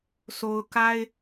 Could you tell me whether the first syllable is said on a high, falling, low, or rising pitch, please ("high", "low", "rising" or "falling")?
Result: low